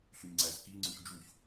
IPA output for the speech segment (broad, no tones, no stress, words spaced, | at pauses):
ɬyɲŋ͡ǀæzki ŋ͡ǀʉçd͡ʒuç